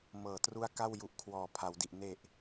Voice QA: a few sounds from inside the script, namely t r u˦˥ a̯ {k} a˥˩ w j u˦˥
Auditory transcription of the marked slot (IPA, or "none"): k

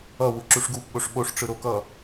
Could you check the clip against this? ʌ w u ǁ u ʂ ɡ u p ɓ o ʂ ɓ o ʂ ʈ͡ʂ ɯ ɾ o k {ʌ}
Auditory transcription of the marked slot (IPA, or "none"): ʌ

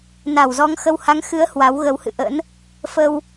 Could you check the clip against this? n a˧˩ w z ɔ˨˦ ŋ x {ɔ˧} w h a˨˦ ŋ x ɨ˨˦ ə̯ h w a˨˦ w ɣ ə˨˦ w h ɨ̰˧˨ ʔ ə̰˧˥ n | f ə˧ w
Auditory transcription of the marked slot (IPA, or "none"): ə˧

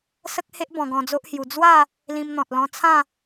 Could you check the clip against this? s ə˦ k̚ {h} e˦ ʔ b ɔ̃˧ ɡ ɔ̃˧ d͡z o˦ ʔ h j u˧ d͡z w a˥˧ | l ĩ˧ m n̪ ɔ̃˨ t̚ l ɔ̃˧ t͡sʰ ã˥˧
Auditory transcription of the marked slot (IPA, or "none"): h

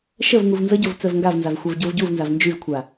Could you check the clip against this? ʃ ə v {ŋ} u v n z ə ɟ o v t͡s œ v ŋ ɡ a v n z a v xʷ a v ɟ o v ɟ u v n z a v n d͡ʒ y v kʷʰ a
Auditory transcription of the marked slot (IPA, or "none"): ŋ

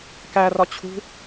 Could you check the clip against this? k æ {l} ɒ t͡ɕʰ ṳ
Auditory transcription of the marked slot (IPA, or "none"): r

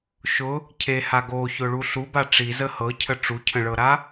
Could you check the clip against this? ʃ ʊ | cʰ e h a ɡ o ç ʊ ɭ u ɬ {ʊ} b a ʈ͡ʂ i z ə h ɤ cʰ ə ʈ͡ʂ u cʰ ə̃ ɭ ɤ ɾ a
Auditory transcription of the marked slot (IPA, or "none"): u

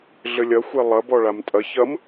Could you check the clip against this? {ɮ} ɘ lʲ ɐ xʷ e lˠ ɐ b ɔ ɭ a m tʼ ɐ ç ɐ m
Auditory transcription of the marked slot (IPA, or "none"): ɮ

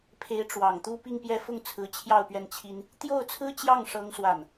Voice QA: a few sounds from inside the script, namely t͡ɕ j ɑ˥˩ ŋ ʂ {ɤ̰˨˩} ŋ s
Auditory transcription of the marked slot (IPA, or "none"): ɤ˥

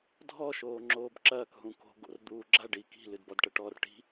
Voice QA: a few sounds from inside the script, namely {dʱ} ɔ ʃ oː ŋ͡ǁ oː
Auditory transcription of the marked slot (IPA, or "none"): dʱ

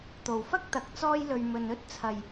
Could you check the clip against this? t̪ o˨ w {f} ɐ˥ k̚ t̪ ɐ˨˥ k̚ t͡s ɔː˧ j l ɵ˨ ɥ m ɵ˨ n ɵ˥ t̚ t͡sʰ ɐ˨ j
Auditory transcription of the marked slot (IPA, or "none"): f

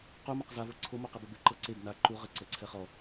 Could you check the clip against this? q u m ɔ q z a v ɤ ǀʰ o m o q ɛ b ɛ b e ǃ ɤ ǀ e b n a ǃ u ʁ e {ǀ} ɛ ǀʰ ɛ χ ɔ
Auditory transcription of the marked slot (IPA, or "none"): ǀ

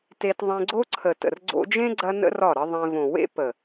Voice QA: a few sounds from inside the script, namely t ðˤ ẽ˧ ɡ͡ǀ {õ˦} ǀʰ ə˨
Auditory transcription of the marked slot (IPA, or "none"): o˦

